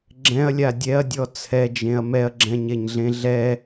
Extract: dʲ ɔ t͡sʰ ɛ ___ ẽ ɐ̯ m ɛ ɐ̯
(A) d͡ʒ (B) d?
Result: A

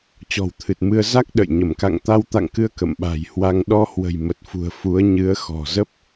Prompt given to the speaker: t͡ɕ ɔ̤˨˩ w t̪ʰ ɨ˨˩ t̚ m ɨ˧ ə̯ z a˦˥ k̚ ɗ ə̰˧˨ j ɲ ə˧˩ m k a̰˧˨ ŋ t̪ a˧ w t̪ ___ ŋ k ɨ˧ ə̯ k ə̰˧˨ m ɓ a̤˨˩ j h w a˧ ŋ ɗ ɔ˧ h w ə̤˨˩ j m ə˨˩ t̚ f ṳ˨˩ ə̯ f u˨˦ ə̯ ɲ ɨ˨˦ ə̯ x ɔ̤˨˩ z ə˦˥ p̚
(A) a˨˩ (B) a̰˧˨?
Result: B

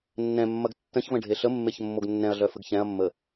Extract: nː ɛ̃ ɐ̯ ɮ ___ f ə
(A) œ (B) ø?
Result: A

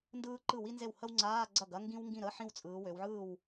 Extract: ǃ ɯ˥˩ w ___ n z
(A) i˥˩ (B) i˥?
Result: B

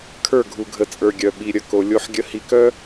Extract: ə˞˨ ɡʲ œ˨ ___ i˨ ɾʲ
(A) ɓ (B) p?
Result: A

